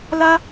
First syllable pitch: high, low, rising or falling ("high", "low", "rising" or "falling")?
high